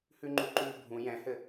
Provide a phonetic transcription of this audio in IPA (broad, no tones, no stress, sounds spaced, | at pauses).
h ʉ ŋ͡ǃ u ǃ ʉ bʱ ũ j ɛ̃ h ɘ